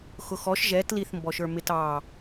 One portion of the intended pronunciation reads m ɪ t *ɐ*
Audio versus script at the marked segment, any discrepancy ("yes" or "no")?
yes